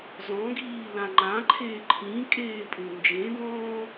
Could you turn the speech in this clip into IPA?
z ɔ̃ ɡ iː l ã ŋ͡ǃ ã ǃʰ eː ǃʰ ĩ kʼ eː pʼ ũ n d͡ʒ ẽ d ɔ̃ː

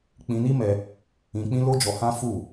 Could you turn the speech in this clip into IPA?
k͡p ĩ˧ n i˦ m ɛ˧ | ĩ˧ k͡p ĩ˦ l o˦ d͡ʒ ɔ˧ h ã˦ f u˦˨

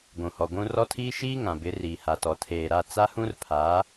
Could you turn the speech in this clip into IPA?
ɡʷ ũ˨ h ɔ˨ ɡʷ ũ˦ r ɔ˦ tʰ iː˦ ʃ iː˦ ŋ ã˨ b ɪ˨˦ r iː˨ h a˨ t ɔ˨ tʰ eː˨ ɾ a˦˨ t͡s a˦ h ũ˦ r pʰ aː˨˦

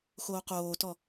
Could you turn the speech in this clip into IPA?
x oː q oː t ɔ

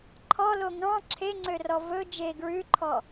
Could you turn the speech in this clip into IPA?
ǃʰ ɔ l o ŋ ɑ̃ ǁʰ e ŋ͡ǀ ø r ɔ v ɵ d͡ʒ e ɡ ɹ ʉ ǃʰ ɔ

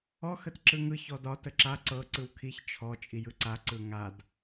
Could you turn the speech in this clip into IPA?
ɔ x ə t ǁ ɯ ŋ ɯ ç ɔ d ɒ t ə ǁ a ǀ ɤ ǀ ɯ w kʰ i ç t͡ʃʰ ɔ t͡ʃʼ i j ɯ ǀ a ǀ ɯ ŋ a d

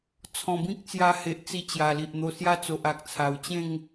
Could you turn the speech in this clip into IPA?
t͡sʰ ɔ̃˨˩ b ĩ˦ k̚ t͡s j a˧ h e˨ ʔ t͡s i˧ t͡ɕ j a˨˩ l i˨ ʔ n̪ o˧ s j a˦ t͡s o˨ ʔ a˨ k̚ t͡sʰ a˨˩ w t͡ɕ ẽ˥˧ ŋ

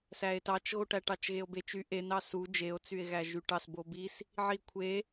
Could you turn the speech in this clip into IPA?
s æ e̯ t ɑ t͡ʃ ɣ o ʈ æ ʈ ɑ t͡ʃ ɣ e o̯ b e t͡ʃ y ʔ e n ɑ s u d͡ʒ e o̯ t͡s y e̯ ɣ æ ʒ y ʈ ɑ s b o b i s | ʕ i kʷʰ e

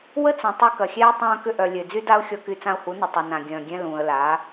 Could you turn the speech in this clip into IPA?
w ə˦ t͡s œ̃˨ tˤ u˧ k ɐ˨ xʲ ɛː˦ tˤ œ̃ː˧ k ʏ˧ ʔ œ˨ lʲ ø˨ d͡z y˦ d a˦ ʊ̯ xʲ ɔ˧ k y˧ t͡s ã˧ ʊ̯ h u˨˦ n ə˨ tˤ u˨ n ã˨ ɡʲ œ̃ː˨ ɡʲ ɛ̃˧ l ũː˨ ə̯ l a˨˦

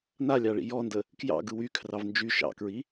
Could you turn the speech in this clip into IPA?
n a lʲ ɑ ɭ ḭ j ɔ n d ə | k j ɑ̰ ɡ ɯ w y kʰ r ɑ v n d͡ʒ y ʃ ɑ̰ k ɹ i

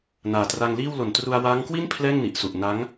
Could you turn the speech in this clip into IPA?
n aː˨˩ t r a˧ ŋ l iː˥˩ w l o˨˩ n t r u˧ a̯ w aː˦˥ ŋ k w i˥˩ n pʰ l ɛː˥˩ ŋ n i˨˩ ʔ s u˨˩ ʔ n a˦˥ ŋ

